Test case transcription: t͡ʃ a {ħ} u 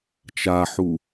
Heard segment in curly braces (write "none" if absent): ħ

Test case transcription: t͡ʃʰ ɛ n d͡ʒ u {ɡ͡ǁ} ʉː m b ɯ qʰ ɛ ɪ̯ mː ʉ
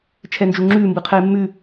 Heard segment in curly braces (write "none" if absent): ŋ͡ǁ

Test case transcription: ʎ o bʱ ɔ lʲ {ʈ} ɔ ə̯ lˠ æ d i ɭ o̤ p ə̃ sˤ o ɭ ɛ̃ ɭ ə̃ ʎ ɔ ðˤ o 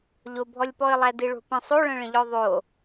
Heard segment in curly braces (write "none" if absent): p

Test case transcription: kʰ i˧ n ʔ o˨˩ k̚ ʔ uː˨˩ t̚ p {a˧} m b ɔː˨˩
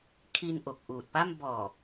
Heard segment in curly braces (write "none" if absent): a˥˩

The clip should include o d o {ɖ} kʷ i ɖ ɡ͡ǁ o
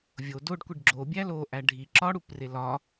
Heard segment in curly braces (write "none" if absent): ɖ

